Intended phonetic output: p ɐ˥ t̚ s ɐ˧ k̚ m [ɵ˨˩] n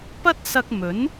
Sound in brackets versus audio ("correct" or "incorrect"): incorrect